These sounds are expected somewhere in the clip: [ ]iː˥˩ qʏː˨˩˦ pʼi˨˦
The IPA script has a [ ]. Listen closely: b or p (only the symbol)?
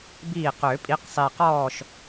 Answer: b